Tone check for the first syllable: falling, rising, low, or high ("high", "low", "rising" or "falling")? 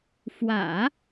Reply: low